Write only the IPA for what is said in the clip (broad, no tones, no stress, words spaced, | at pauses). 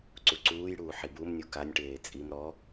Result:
ǀuǀuːjɽuː ħibumnʲu kanʲʈeː t͡sʼim ɾɔ